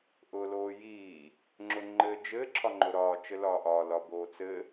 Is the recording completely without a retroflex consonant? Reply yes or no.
yes